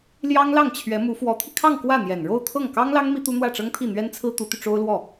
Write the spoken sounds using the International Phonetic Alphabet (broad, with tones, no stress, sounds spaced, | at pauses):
l j ɑ˥ ŋ l ɑ˥˩ ŋ t͡ɕʰ ɥ ɛ˧˥ m u˧˥ f w ɔ˧˥ t̪ʰ i˧ kʰ ɑ˥˧ ŋ k w ä˥˩ n̪ j ɛ˨˩ n ɻ o˥˧ ʊ̯ t̪ʰ ɤ˥˩ ŋ k ɑ˥ ŋ l ɑ˥ ŋ m i˥ t̪ u˥ n̪ w ä˥˩ ʈ͡ʂ ɤ˥ ŋ t̪ʰ i˥˩ n̪ ɥ ɛ˥ n t͡sʰ ɹ̩˥ t̪ u˧˥ t̪ y˧ ʈ͡ʂ o˥ ʊ̯ l w ɔ˥˩